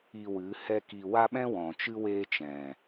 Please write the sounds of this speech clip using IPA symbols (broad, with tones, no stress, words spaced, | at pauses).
i˧wɨ˨˦ hɛ˦ki˧ wa˦ɓɛ̃˦ wɔ̃˨t͡ʃɨ˦ weː˦t͡ʃɛ̃˨